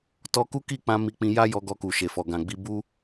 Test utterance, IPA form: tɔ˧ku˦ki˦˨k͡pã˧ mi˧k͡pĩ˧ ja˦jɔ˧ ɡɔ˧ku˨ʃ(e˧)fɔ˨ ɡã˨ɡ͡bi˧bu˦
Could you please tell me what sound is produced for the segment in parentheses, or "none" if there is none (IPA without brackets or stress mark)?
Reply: e˨